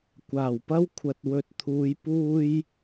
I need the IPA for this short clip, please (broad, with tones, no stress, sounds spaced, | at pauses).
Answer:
kʷ aː˨˩ w p ɐ˥ w kʷʰ ɐ˨ t̚ w ɵ˨ t̚ t̪ʰ uː˨˧ j p uː˧ j